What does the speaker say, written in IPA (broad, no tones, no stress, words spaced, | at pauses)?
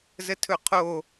zətʰɵqʰo